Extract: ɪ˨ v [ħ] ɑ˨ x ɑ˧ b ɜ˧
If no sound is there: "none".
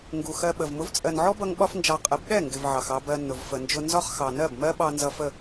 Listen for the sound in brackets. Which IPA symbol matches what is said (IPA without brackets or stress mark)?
ʕ